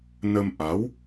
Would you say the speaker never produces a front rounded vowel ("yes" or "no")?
yes